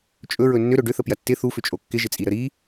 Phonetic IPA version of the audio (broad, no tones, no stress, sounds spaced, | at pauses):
t͡ʃʼ ɵ ɹ ɵ nː ʏ ɾ ɵ ɖ ʏ θ ə p j ɐ tː ɪ θ u f ʏ t͡ʃʼ o kː ɪ ʒ ɪ t͡sʼ i ɾ ə ɾ i